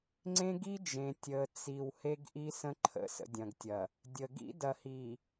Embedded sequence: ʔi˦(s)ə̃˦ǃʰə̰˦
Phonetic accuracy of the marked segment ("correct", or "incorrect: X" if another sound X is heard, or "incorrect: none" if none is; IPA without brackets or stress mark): correct